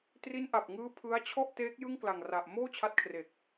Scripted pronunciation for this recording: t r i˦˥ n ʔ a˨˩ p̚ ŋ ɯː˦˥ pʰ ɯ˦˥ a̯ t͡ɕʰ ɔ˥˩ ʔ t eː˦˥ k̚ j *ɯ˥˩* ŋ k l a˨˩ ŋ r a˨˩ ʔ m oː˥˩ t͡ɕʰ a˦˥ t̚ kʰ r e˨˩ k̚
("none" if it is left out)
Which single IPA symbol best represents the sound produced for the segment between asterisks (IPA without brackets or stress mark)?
ɯ˥˩